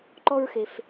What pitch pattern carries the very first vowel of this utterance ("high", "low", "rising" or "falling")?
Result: high